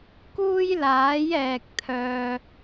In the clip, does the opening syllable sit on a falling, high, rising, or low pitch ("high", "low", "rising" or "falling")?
high